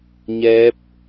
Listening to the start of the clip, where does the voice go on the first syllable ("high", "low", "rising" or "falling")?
rising